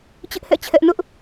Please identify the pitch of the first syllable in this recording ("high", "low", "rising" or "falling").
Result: high